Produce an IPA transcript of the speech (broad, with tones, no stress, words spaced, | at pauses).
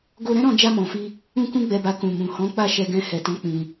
ɡo˧ɾɛ̃˦ɾɔ̃˧ d͡ʒa˧mɔ̃˨fi˧ | ũ˦kũ˦ɡ͡bɛ˧ba˧ kũ˨mũ˨hɔ̃˨˦ k͡pa˦˨ʃɛ˧ɡɛ̃˧ hɛ˨tɔ̃˨˦ k͡pĩ˧